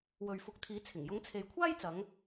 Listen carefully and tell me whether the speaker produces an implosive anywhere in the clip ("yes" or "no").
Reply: no